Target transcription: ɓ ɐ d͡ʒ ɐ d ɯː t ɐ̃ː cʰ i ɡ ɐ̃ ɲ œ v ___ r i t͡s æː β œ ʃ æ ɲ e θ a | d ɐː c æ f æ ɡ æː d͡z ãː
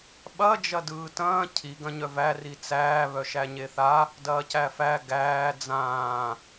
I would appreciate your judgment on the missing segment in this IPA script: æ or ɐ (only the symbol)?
æ